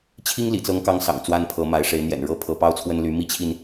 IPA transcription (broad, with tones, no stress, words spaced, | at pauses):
t͡ɕʰi˥ŋlḭ˨˩t͡sɤ˧˥ŋkɑ˧˥ŋ sɑ̰˨˩ŋt͡swa˥npʰɤ˧˥ma˧˥ɪ̯ ʂe˧˥ɪ̯n̪jɛ̰˨˩n ɻɤ˥pʰɤ˧˥ pɑ˥ʊ̯t͡sʰwə˥nly˧˥ mi˥t͡ɕʰi˨n